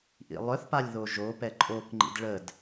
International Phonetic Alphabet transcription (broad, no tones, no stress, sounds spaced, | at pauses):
ʔ ḭ lˠ œ θ p a lʲ ð o ʒ o p ɛ ǃʼ o k ŋ͡ǃ ḭ d ɭ ə d